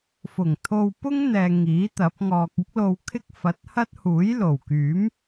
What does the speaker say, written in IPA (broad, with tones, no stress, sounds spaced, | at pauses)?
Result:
f ʊ˨˩ ŋ t̪ʰ o˧ w p ʊ˥ ŋ n̪ ɛː˨ ŋ iː˨˥ t̪ ɐ˨˥ p̚ ŋ ɔː˨ k̚ ɪ˥ k̚ l o˧ w kʰ ɪ˥ k̚ f ɐ˨˥ t̚ h ɐ˥ t̚ h uː˨˥ j l o˨˩ w k yː˨˥ m